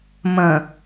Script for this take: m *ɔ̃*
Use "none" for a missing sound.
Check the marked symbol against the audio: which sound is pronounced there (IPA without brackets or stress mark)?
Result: ə̃